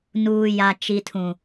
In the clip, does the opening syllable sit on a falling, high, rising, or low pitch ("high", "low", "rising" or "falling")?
low